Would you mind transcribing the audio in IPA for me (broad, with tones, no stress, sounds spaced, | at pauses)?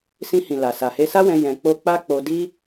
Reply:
s ĩ˧ h ĩ˨ l a˨ s a˨ h e˧ s a˦ w ɛ̃˧ j ɛ̃˧ k͡p o˦ k͡p a˦ k͡p o˧ d i˦